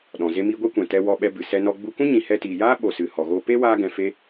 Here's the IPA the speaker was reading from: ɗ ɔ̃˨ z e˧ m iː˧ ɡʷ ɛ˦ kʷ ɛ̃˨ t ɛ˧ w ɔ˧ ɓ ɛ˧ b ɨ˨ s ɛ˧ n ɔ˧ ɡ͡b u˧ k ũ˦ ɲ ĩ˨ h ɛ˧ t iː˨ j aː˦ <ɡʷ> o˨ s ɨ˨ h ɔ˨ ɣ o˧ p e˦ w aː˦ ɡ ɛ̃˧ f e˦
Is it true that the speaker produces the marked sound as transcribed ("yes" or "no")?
no